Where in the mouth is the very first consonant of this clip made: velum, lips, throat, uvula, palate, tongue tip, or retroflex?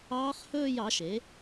uvula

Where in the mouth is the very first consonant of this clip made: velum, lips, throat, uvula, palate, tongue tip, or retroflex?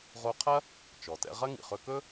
uvula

